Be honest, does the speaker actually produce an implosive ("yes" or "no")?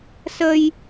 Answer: no